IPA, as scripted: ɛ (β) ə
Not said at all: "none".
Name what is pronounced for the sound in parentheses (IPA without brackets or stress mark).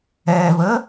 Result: β